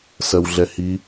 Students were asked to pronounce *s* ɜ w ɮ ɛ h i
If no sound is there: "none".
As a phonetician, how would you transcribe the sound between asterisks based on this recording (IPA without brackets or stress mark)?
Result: s